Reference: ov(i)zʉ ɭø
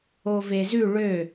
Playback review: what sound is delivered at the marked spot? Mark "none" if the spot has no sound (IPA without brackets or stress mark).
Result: e